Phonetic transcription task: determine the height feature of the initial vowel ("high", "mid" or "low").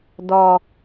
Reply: mid